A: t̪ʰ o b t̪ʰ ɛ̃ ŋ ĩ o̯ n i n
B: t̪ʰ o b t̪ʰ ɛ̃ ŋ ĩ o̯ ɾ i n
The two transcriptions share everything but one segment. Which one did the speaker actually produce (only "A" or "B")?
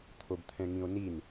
A